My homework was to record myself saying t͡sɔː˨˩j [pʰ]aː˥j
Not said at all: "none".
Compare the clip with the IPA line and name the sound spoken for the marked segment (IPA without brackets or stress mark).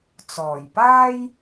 p